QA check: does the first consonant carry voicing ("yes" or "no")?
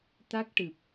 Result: no